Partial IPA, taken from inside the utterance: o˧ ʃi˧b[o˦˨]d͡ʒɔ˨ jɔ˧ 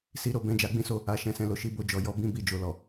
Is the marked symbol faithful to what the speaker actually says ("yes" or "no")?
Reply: no